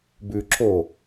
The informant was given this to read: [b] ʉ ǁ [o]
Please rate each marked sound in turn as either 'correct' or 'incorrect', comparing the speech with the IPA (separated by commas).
correct, correct